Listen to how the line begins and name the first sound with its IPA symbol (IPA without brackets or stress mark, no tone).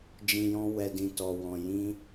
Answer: d͡ʒ